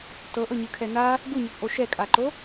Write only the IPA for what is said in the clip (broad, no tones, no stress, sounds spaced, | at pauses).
t ɤ ʔ ɤ ɲ ɯ kʰ ɛ n a | ɡ u ɲ ɔ p ʔ o ʃ ɛ kʼ a ǃ o